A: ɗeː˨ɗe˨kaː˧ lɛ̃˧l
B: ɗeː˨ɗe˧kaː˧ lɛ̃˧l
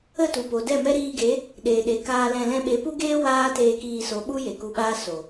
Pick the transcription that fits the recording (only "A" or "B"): A